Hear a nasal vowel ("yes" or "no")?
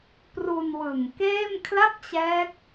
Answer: no